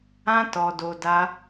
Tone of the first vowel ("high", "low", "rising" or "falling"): high